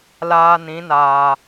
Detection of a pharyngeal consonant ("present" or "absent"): absent